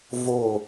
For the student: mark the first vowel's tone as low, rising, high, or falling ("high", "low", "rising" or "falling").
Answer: falling